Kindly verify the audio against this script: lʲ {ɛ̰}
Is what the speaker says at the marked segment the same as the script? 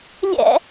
yes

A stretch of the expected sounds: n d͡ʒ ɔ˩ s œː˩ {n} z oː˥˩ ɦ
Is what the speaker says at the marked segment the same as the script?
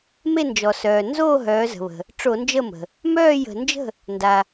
yes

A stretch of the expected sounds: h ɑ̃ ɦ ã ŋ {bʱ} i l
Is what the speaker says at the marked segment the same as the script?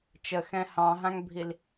yes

